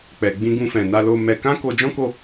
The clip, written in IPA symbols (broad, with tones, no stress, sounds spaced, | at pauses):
k͡p ɛ˨ ɡ͡b ĩ˧ ɡ ũ˧ f ɛ̃˨ n a˧ l o˧ m ɛ˧ k ã˦ k o˧ d͡ʒ ɔ̃˦ k o˦˨